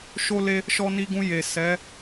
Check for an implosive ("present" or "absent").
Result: absent